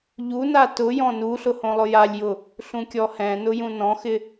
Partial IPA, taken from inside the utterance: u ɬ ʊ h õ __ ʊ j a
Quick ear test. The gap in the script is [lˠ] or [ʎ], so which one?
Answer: lˠ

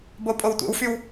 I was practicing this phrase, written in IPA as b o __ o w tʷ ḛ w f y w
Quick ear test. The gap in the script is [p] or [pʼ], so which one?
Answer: pʼ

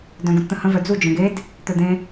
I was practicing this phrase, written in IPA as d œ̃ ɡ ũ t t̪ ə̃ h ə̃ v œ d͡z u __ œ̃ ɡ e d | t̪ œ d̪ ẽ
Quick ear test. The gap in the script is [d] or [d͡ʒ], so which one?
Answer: d͡ʒ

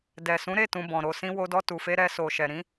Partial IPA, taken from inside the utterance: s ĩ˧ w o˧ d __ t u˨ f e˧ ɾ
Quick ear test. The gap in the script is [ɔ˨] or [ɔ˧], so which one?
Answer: ɔ˧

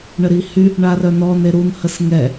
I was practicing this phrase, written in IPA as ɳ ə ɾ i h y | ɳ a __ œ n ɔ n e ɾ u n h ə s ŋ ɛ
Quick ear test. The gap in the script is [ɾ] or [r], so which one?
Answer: r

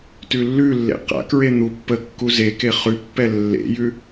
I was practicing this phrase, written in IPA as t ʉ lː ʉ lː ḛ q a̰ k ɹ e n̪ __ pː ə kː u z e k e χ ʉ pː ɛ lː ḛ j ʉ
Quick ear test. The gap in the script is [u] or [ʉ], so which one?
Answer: u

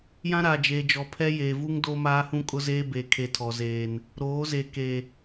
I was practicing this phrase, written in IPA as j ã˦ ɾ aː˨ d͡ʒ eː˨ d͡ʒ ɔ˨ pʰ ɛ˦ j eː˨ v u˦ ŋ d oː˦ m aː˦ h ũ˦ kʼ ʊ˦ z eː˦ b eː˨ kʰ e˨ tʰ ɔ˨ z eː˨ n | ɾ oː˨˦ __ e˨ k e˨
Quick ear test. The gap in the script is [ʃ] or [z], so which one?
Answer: z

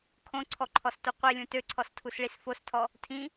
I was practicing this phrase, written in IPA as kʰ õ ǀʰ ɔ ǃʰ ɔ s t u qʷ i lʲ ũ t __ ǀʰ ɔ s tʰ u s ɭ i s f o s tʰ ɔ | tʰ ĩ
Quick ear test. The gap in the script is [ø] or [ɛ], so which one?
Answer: ø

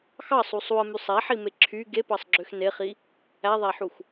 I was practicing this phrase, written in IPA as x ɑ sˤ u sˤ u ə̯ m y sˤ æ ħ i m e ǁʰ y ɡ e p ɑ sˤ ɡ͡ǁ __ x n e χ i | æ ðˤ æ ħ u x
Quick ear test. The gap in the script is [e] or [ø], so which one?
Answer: ø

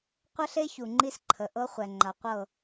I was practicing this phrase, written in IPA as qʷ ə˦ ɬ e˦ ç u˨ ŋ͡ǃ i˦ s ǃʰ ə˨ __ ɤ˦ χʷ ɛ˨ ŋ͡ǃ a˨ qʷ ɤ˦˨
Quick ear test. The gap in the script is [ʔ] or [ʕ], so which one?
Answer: ʔ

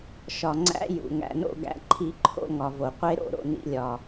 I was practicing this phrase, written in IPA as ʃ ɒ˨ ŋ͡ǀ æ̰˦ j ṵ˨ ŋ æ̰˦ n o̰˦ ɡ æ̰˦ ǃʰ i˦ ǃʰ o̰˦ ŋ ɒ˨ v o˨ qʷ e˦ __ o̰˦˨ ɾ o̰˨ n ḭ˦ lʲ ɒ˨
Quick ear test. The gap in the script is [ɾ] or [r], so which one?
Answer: ɾ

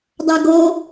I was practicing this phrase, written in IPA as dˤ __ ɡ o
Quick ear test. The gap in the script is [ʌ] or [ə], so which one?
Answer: ʌ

